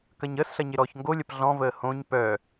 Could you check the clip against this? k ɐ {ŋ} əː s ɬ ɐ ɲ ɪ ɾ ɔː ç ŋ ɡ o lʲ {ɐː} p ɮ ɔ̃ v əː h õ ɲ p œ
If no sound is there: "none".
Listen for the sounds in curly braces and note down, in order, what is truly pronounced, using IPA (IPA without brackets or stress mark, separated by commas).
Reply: ɲ, ɐ